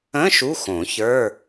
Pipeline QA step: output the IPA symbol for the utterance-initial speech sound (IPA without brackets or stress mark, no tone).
ə̃